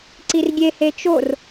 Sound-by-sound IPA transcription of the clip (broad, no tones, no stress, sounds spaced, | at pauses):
ǀ i r ɡʲ e h e t͡ʃ o r